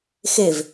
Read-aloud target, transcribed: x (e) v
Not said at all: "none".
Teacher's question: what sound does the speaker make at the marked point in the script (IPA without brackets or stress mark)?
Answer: e